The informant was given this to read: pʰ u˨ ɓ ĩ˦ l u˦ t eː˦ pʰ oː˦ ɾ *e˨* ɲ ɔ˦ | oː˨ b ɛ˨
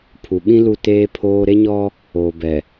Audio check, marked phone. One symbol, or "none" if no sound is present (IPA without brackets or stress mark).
e˦